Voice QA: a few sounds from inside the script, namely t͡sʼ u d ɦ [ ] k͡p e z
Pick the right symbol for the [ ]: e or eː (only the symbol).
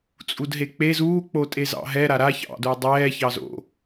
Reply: e